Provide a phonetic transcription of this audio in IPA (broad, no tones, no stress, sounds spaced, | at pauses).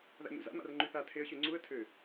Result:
ð a̰ ɲ ṵ z a̰ m a̰ r ŋ͡ǃ y θ a tʰ e ə̯ ɕ y ŋ͡ǀ u ə̯ tʰ ø